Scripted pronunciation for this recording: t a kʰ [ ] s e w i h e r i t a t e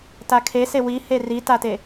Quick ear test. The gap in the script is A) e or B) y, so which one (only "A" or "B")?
A